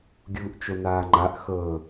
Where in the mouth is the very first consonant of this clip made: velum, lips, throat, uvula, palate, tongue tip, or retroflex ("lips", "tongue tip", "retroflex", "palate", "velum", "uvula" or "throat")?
velum